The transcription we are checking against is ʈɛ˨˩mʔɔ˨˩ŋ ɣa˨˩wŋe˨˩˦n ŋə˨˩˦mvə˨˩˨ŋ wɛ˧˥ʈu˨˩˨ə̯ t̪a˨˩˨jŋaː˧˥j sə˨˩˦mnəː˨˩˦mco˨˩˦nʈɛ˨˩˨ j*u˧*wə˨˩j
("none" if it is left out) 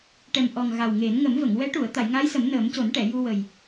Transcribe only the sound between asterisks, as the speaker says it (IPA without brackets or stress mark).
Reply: u˧